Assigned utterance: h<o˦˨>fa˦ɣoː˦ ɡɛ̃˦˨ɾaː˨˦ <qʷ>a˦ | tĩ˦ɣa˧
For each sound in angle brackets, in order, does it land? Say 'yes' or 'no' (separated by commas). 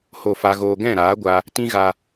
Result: yes, no